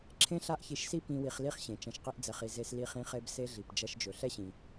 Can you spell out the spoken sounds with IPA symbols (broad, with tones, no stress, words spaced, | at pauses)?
ǁʰẽ˥ɬa˥ʔçi˧ʃsi˥ pĩ˧ wi˧χli˥χɕẽ˩ t͡ʃɐ̃˧ʃqi˥ʔd͡zɛ˧χi˧ ze˧sli˧χĩ˧ χe˧bse˧ɮi˩p d͡ʒɐ˧ʃd͡ʒɵ˩ ɬɛ˥ɕĩ˩